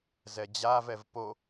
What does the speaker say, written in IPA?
z ɛ d͡ʑ a v ɛ v p o

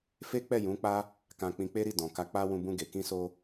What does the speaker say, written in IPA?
f e˦ k͡p ɛ˦˨ j ũ˨˦ k͡p a˦ | k ã˧ k͡p ĩ˧ k͡p e˦ ɾ i˦˨ d ɔ̃˨ k a˧ k͡p a˧ w ũ˧ b ũ˧ ɡ e˨ k ĩ˧ s o˧

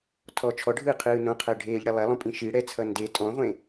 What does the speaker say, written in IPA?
tʰ ɔ t͡ʃʰ ɔ ɖʱ ɯː qʰ ɯː n õ qʰ ɜ ɖʱ eː ʎ ɽ e lˠ ɛ lˠ õ pʼ ĩ ʃ i ɽ ɛ t͡sʰ ʌ n d e tʼ ɔ̃ ʁʷ ẽ

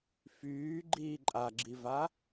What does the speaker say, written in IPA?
f yː ɡ͡ǃ iː ǃʼ a ɡ͡ǁ i v a

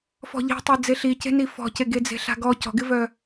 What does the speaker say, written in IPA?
f ɔ̤ ʎ i̤ tˤ e d͡z e ɬ i c e̤ n i f ɔ̤ c e ɡ e d͡z e̤ ɬ a̤ ɡ ɔ c ɔ̤ ɡ ɪ v œ

